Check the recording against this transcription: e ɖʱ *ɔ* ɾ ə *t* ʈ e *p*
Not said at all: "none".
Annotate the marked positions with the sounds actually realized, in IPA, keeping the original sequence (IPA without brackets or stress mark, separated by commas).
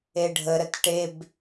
ə, t, b